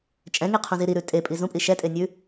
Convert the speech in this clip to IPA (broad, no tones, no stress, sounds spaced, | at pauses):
t͡ʃʼ ɛ̃ ŋ i qʰ ũ z i ɾ i ɾ ʉ tʼ e pʼ i z ũ pʼ i ʃ ɛ tʼ e nʲ ʉ